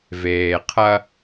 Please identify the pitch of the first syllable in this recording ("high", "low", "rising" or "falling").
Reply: low